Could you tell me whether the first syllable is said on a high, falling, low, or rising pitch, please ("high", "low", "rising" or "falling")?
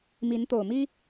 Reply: rising